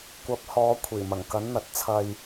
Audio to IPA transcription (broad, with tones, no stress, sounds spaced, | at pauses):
kʷ ɐ˨˥ p̚ h ɔː˨˧ kʷʰ iː˨˩ m ɐ˨˩ ŋ k ɐ˨˥ n n̪ ɐ˨ t̚ t͡sʰ ɐ˧ j